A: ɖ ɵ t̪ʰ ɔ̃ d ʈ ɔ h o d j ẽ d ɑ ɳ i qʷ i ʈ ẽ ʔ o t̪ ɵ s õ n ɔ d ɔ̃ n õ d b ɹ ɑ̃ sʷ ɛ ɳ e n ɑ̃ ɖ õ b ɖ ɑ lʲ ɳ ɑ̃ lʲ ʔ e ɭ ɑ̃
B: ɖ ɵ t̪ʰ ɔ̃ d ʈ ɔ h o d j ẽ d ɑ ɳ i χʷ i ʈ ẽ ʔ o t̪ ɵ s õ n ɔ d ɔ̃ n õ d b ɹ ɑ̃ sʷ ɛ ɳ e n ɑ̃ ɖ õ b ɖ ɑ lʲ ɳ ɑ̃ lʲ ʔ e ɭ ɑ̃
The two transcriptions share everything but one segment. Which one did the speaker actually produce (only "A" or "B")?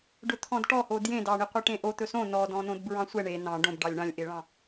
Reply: A